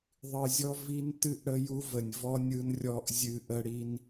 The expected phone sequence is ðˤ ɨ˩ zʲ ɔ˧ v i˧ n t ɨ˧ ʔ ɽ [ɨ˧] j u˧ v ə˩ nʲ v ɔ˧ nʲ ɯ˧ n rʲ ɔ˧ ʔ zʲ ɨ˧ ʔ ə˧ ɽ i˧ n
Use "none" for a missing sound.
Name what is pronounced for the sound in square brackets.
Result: ə˧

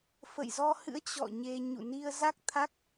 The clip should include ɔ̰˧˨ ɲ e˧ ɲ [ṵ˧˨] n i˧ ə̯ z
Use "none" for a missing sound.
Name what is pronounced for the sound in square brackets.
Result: ṵ˧˨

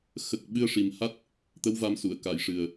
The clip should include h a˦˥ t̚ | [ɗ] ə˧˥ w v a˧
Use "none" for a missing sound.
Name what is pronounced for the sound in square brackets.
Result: t̪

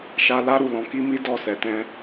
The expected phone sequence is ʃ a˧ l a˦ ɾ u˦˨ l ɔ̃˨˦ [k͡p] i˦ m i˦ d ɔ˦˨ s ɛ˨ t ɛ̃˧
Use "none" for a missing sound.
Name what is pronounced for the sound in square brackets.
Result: k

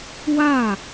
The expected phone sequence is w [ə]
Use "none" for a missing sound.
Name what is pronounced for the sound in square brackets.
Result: a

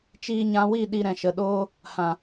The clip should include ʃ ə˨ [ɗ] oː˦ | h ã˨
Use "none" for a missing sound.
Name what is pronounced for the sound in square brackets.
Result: ɗ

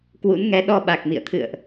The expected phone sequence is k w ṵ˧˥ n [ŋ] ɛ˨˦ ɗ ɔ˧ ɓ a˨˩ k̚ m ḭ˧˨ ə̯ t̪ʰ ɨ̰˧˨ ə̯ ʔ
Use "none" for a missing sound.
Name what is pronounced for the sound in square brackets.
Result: ŋ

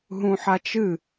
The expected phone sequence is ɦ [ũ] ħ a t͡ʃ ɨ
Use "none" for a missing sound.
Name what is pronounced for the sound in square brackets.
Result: ũ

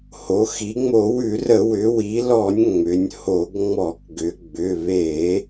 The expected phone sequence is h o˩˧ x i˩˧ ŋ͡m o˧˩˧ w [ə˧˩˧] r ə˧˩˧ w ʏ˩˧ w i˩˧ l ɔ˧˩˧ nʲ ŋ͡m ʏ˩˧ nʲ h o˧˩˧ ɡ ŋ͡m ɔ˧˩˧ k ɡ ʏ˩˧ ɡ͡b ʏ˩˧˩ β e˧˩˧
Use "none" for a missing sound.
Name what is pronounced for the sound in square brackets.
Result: ʉ˧˩˧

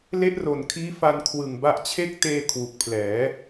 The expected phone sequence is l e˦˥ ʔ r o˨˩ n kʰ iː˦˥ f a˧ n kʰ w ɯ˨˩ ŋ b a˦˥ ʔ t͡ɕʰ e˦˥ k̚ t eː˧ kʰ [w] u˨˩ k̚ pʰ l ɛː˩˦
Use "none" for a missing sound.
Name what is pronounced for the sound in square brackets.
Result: w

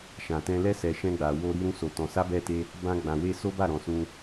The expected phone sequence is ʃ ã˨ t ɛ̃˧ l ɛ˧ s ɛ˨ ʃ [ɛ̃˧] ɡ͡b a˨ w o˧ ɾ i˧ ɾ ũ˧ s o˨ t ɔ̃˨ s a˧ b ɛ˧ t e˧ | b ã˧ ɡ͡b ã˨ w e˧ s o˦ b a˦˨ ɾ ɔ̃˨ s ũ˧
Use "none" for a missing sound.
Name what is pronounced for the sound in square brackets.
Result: ɛ̃˧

